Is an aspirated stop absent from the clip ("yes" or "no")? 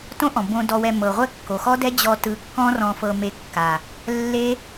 yes